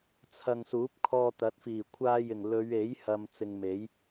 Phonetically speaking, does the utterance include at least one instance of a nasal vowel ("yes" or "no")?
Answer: no